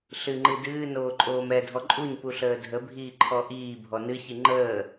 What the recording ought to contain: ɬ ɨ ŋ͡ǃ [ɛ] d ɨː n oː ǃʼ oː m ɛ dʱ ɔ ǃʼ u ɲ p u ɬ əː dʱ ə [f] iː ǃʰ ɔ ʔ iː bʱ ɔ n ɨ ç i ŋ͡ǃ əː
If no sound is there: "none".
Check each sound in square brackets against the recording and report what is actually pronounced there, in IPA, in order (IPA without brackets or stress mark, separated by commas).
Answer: ɨ, bʱ